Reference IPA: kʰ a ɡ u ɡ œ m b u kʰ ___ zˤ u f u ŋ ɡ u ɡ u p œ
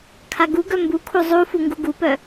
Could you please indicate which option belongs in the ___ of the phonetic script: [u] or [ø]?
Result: u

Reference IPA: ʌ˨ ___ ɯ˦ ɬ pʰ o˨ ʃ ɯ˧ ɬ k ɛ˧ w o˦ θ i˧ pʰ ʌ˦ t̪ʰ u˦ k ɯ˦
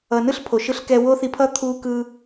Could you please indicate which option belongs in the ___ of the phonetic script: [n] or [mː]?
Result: n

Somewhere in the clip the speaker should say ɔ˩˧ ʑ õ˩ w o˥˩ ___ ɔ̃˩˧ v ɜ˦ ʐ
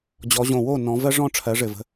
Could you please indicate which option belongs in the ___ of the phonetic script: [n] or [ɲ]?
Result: n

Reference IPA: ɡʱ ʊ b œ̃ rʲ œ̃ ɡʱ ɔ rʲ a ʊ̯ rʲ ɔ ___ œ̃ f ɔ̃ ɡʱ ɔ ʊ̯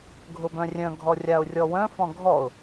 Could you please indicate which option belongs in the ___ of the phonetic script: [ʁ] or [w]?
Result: w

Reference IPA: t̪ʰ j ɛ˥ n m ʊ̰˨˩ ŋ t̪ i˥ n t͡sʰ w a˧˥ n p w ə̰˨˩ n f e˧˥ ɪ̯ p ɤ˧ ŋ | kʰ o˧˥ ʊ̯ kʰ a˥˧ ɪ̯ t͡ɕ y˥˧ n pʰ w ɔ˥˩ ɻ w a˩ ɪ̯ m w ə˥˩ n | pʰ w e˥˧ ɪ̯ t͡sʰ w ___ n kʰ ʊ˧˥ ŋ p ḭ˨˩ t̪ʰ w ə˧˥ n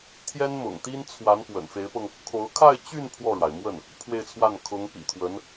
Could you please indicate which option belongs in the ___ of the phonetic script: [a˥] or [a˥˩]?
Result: a˥˩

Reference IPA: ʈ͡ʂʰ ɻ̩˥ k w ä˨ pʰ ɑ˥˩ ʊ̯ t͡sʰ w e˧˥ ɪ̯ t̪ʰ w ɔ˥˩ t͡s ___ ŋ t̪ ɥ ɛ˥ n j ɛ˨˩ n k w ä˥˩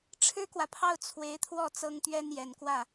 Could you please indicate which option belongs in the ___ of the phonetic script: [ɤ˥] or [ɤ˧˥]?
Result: ɤ˥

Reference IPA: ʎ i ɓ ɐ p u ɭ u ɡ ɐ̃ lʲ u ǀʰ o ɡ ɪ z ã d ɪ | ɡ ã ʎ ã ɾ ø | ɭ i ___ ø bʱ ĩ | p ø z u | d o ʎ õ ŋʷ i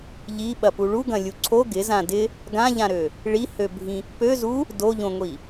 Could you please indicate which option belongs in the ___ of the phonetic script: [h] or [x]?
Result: h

